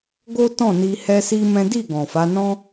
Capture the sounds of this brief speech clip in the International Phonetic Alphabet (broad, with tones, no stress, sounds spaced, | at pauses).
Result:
ɡ o˦ t ɔ̃˦˨ n i˧ h ɛ˦ s i˦ m ɛ̃˦ d i˦˨ ɡ ɔ̃˨ f a˨˦ n ɔ̃˦